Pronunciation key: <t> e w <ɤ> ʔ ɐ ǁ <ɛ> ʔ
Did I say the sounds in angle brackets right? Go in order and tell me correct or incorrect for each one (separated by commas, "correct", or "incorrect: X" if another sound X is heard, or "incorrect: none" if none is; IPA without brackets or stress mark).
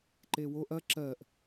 incorrect: ǃ, incorrect: o, incorrect: ɜ